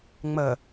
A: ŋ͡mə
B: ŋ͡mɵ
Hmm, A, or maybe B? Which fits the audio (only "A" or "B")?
A